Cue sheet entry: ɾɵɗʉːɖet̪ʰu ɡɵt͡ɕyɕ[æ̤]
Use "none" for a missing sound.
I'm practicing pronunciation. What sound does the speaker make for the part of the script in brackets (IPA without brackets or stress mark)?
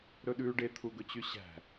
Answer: æ̤